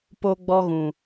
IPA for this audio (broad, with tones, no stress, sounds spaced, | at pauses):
p o˦ ɡ͡b ɔ˦ ɣ ũ˨